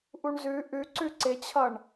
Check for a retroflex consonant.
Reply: present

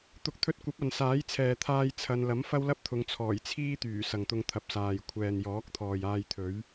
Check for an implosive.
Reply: absent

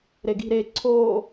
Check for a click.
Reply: present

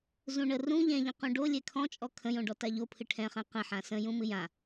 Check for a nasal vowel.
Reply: present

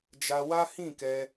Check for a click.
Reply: absent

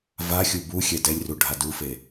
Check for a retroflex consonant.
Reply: present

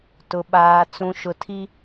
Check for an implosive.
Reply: present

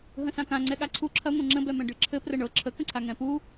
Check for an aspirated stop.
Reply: present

